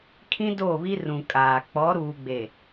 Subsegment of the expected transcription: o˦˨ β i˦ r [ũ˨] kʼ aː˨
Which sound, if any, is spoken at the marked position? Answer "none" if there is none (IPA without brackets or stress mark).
ũ˨